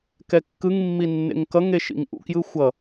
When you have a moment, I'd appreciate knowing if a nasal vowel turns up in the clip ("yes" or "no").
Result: no